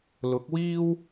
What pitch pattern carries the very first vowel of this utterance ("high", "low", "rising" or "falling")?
rising